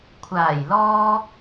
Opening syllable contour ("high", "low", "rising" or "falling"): low